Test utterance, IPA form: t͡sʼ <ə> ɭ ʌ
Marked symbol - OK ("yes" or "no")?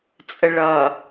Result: yes